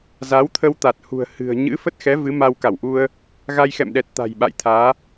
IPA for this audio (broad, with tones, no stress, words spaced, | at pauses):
za˨˦wt̪ʰə˧w t̪a˨˩t̚hṳ˨˩ə̯ hɨ̤˨˩ə̯ ɲɨ̰˧˥ fə˦˥t̚xɛ˨˦ vɨ˨˦ma˧wka˧˩wʔu˧ə̯ | ɣa˧jxɛ̰˧˨mɗɛ˨˩t̚ t̪a̤˨˩jɓa̰˧˨jt̪ʰaː˨˦